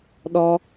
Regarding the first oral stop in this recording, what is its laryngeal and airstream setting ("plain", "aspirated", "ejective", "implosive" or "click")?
implosive